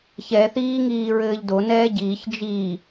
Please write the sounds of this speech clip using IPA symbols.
ç ɛ θ iː ŋ iː ɹ ɘː ʎ d o n ɛː ɟ iː ç d͡ʒ i

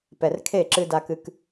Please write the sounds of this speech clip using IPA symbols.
p ɛ˨ r kʰ e˦˨ ǁ ɨ˦ d a˦ k ɨ˦ k

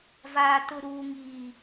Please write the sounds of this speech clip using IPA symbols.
v aː˨ t ʊ˨ ɾ uː˨ ŋ iː˨

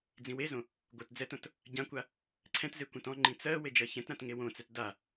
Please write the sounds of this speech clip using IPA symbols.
d͡z ĩ w e z õ | ɡʷ ɜ t d͡z ɛ t õ t | ɟ ã kʷ a | ǀʰ ɛ̃ t z e kʷ ɛ̃ t ɔ̃ ŋ͡ǃ ĩ t͡s ɜ w e d͡ʒ ɜ ç ɛ̃ t ɾ ã t ŋ e w õ t͡s ɛ t d a

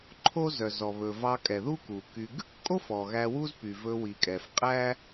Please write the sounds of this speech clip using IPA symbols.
ǃʰ o˥ z œ˩ z ɔ˩ β ɵ˩ v ɑ˧ kʼ ɛ˩ ð u˥ k u˩ k y˧ ɡ | kʼ o˥ f ɔ˩ ɣ æ˧ w u˥ z p y˩ v ɵ˧ w i˩ kʼ ɛ˩ f qʼ æ˥

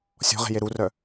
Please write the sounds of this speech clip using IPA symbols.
sʲ ɔ̤ ʁ e̤ j e ɾ u r œ

